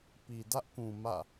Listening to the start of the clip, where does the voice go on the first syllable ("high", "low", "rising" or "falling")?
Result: low